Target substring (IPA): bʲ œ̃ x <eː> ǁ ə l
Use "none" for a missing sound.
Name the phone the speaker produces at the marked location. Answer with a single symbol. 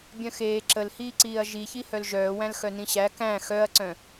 eː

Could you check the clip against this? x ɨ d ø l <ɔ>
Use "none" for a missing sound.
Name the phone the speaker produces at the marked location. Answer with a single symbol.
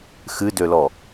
ɔ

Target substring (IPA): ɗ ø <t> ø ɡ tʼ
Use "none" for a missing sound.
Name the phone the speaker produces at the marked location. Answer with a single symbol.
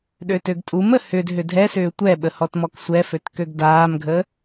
t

